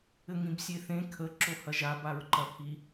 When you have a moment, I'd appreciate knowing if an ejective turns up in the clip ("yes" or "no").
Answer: no